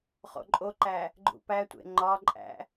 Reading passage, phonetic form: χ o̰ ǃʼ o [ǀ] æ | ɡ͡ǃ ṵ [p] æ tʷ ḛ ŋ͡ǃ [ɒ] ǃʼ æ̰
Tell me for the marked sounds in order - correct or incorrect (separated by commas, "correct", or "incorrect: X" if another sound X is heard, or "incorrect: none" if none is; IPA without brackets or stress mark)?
incorrect: ǃ, correct, correct